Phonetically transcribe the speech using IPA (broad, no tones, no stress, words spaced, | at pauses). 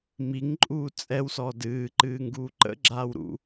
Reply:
miŋǃʼuː t͡sʼɛwsɔ dɨːǃɨː ŋɡuːǃə̰ɡ͡ǁaːw ɾṵ